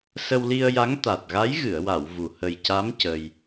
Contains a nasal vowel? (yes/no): no